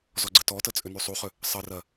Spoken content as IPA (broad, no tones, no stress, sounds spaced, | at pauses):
z ɔ ɡ͡ǀ ə t ɔ t ə t͡sʼ ʏ n y sˤ u χ ʏ | sˤ ɘ r ɜ